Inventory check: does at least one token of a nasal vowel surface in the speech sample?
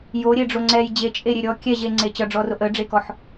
no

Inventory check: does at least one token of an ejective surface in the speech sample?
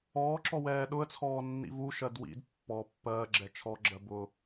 no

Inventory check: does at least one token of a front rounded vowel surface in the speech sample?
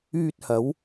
yes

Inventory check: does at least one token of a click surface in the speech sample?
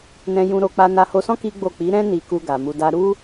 no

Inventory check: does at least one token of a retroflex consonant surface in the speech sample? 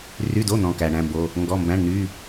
yes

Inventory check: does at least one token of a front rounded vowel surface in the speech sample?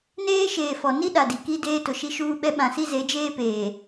no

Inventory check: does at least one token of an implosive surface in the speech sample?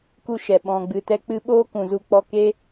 yes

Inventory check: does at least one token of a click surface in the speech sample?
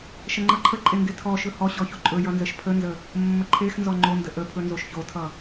yes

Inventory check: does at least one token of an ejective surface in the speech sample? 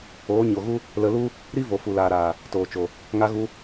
no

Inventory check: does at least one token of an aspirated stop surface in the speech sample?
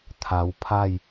yes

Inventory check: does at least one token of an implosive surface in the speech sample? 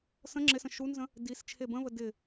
no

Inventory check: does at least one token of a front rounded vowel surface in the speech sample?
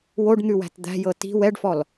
no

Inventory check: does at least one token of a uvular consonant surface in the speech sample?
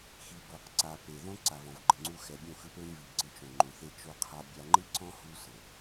yes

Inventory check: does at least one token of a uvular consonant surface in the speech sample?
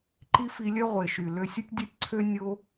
yes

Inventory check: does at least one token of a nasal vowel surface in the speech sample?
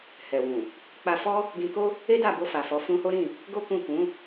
yes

